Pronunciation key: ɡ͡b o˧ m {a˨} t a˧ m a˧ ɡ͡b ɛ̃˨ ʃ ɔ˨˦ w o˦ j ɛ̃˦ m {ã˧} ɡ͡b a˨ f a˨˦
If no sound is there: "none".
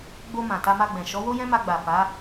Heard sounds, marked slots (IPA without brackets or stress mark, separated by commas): ã˨, a˧